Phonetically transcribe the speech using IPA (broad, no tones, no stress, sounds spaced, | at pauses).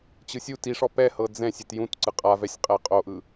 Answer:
t͡ɕ ɯ sʲ u t i ʂ ɔ p ɛ h ɤ d͡z ɛ̃ sʲ e t j ũ t ǀ ɯ qʼ a v ɛ sʲ qʼ ɛ qʼ o ʔ ɯ